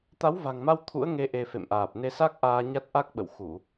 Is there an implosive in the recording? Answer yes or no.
yes